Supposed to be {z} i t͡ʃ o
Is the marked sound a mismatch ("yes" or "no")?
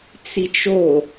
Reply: yes